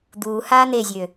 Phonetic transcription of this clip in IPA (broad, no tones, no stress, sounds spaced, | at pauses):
d̪ uː h aː n̪ e zʲ ø